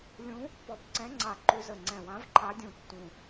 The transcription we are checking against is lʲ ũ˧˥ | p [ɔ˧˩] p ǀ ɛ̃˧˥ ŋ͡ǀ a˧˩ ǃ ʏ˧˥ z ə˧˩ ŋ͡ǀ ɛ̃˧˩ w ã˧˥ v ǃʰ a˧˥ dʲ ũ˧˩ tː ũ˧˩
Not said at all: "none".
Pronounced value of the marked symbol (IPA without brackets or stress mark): ɔ˧˩